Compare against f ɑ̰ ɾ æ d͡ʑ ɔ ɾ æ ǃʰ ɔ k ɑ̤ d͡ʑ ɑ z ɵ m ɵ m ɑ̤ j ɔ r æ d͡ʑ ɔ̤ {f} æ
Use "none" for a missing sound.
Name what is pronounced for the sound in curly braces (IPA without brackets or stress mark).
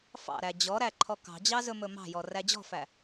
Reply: f